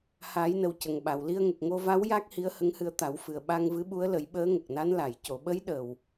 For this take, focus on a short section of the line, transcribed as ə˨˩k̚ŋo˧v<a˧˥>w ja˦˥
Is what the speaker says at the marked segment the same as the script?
yes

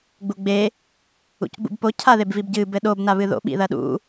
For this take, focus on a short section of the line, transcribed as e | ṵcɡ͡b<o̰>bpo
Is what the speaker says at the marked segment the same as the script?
no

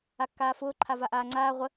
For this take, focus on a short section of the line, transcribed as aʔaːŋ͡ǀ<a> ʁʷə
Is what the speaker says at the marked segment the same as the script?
no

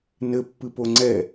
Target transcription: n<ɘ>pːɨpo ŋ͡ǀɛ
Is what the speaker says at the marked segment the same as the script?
yes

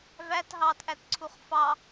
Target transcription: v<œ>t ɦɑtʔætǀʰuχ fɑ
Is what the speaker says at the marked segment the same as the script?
no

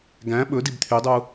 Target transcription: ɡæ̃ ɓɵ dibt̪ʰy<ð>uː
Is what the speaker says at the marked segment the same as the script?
no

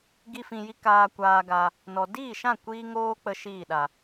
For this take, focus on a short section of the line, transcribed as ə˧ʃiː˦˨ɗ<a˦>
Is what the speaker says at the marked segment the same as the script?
no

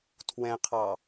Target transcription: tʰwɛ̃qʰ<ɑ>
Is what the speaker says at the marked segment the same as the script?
yes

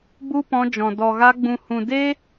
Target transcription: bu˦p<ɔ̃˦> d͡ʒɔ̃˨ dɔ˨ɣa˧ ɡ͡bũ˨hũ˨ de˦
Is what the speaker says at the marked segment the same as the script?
no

